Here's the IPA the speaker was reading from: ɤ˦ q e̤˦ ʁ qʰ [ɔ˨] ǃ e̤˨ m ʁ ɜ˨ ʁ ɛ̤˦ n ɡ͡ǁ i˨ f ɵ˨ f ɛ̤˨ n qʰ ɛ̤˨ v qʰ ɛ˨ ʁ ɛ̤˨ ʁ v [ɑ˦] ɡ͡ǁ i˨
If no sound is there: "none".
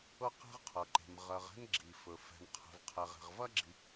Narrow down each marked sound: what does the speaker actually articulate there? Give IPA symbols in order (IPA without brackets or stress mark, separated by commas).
ɤ˨, ɐ˦